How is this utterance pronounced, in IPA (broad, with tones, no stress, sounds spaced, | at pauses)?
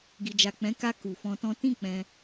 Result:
ɡ i˨ d͡ʒ a˨ k͡p ɛ̃˨˦ k a˧ k u˨ f ɔ̃˧ t ɔ̃˦ t ĩ˦˨ k͡p ɛ̃˧